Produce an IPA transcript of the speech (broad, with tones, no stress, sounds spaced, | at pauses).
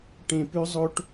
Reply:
ʈ ẽ˦ p ʉ˦ zˤ o˦ ʈ